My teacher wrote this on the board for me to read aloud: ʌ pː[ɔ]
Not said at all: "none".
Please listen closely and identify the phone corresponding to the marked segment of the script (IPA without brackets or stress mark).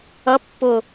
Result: ʊ